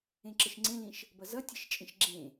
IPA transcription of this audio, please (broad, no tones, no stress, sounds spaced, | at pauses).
ẽ ǁ ə ʃ ŋ͡ǀ ẽ l ĩ ʃ | b ʌ z ʌ tʲ e ʃ t͡ʃʼ ĩ ʃ ɡ͡ǁ ẽ